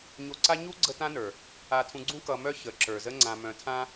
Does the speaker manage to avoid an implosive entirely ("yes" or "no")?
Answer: yes